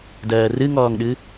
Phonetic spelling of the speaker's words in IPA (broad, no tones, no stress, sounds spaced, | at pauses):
d ɜː r ɨ ŋ ɔː ŋ ɗ ɨ